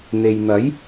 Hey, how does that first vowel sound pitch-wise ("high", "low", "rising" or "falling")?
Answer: low